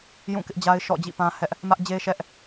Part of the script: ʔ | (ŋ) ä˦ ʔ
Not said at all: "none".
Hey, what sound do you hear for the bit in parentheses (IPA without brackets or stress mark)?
m